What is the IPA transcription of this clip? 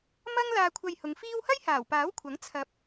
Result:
m ɐ˥ ŋ l aː˧ kʷʰ ɐ˧ j h ʊ˨˧ ŋ f iː˥ w h ɐ˥ j h aː˨˩ w p aː˨˥ w kʷʰ ɐ˨˥ ŋ t͡sʰ ɐ˧ p̚

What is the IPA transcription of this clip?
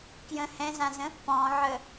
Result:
k j ə̃ h ɛ̃ z ã z ə̃ | p ɔ̃ ʕ ə

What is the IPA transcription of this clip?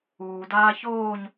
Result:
uː d aː ç oː ɲ

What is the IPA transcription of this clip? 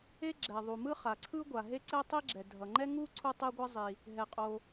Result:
e˥ ɡ͡ǁ ɛ˩ ðˤ u˩ m ɯ˥ χ a˩ ǀʰ ɯ˥ ɡʷ a˩ ɦ e˥ ǀ ɛ˥ tˤ i˥ ɡ͡ǁ ɛ˩ dʱ ʌ˩ ŋ͡ǃ ɛ˥ ŋ u˥ ǀʰ u˥ tˤ e˥ ɡʷ ɛ˥ zˤ i˩ | ɦ ɛ˩ qʼ o˩

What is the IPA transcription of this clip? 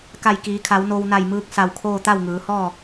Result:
k a˧˩ j k iː˩˧ kʰ a˩˧ w n o˧ w n a˧˩ j m ɯː˧ k̚ s a˧˩ w kʰ oː˥˨ t̪ a˥˨ w ŋ ɯː˩˧ h ɔː˥˨

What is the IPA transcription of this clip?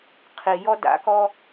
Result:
qʰ i j ɔ d a̰ k ɔ

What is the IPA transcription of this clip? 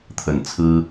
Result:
t̪ʰ ə˨˩ n t͡sʰ ɹ̩˥

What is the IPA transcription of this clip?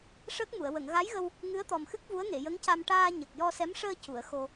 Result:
ʂ əː˦˥ k̚ m u˨˩˨ ə̯ w ə˨˩˨ ŋ ɣ a˧˥ j ɣ ə˧ w | ŋ ɨ˧˥ ə̯ t̪ ɔ˨˩ m x ɨ˦˥ k̚ v u˧˥ ə̯ ŋ e˨˩˨ j ə˧˥ ŋ c a˧ m ʈ aː˧ ɲ ə˨˩ k̚ j ɔ˧ s ɛ˧˥ m ʂ əː˧ c u˨˩˨ ə̯ x o˧

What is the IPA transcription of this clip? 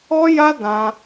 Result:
ɔ˦ j a˦ d ã˦

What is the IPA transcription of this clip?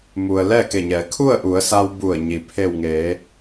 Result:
m u˩ ə̯ l ɛː˥˨ k e˧˩ ɲ ɛː˩˧ kʰ u˥˨ ə̯ ʔ u˩˧ ə̯ s a˧ w b u˧˩ ə̯ ɲ i˩ pʰ e˧˩ w ŋ eː˩˧

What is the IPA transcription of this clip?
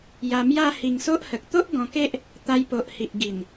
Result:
j a˧ m j a˦ h i˧ ŋ s o˦ ʔ h ə˨ k̚ t̪ o˦ ʔ ɡ ɔ̃˧ k e˦ ʔ | t̪ a˧ j p o˨ ʔ h i˨ ʔ ɡ i˨˩ n

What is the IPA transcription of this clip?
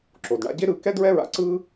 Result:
ǁ o˩ d ɳ a̰˧ ɟ e˥ ɾ ɯ˧ k ɛ˥ d ɹ ɛ˥ ɹ a̰˧ ǀ ɯ˥

